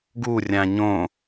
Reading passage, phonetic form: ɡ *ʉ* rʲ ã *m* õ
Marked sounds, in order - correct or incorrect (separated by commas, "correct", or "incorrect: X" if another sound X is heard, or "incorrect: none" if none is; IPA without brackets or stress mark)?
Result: incorrect: u, incorrect: ɲ